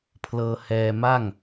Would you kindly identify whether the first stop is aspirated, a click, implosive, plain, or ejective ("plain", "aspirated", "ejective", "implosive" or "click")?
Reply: aspirated